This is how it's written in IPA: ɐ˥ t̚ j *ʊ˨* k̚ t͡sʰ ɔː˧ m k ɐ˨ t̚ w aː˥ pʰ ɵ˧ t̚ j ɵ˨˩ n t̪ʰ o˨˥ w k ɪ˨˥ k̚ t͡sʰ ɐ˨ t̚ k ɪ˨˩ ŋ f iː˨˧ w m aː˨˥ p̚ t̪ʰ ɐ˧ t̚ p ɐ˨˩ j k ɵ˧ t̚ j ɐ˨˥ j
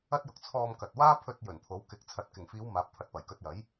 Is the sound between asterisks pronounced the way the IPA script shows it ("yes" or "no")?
yes